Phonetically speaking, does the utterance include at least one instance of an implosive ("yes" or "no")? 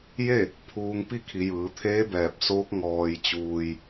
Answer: no